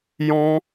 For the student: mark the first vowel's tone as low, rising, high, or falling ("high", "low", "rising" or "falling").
high